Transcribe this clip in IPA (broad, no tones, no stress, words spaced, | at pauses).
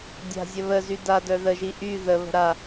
dʲa̤zʲə βəzy dadœ ðəʒi ʔy ðəβə̤ ɾa